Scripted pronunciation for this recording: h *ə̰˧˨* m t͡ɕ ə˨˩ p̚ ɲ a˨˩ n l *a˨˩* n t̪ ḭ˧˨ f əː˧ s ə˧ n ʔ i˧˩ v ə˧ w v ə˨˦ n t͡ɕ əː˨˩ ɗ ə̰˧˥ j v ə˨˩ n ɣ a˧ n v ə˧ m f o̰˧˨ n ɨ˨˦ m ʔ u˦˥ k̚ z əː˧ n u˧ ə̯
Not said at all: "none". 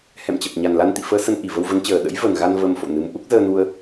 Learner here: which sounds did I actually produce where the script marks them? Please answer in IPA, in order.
ɛ̰˧˨, a˧

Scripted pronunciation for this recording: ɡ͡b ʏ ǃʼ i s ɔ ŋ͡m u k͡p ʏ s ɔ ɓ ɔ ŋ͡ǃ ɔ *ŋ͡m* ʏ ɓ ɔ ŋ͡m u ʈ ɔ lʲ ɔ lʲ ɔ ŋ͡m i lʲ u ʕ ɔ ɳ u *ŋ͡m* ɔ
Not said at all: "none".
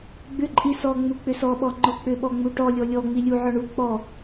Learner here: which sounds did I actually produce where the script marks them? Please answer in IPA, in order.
k͡p, k͡p

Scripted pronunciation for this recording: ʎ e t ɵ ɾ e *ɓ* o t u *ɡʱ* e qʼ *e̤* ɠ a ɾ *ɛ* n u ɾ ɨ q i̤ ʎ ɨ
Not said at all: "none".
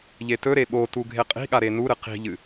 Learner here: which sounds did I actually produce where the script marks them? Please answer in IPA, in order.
ɓ, ɡʱ, i̤, e

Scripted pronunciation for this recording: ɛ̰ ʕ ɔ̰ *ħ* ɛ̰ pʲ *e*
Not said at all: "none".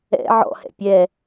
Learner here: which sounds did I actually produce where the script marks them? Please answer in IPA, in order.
h, ɛ

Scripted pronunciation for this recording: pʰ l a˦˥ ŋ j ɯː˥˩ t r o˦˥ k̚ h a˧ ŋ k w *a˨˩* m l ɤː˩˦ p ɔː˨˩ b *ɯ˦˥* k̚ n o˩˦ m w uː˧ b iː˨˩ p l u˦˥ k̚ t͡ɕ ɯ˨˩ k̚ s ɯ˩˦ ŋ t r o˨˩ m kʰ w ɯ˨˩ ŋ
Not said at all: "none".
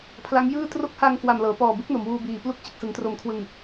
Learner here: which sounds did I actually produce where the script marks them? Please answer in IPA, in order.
a˨˩, ɯ˦˥

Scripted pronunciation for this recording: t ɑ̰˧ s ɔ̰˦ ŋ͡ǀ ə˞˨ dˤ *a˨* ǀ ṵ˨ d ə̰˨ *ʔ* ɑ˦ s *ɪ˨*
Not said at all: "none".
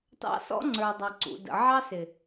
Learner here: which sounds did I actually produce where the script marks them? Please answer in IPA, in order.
ɑ˨, ʕ, ɪ˨

